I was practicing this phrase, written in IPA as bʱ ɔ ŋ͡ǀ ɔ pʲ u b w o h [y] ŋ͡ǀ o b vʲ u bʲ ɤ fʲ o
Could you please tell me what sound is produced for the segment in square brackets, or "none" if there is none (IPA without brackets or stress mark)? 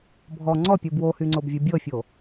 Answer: y